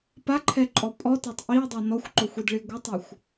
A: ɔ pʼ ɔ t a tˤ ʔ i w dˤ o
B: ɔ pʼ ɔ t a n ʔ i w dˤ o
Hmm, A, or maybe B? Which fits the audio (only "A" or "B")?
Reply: A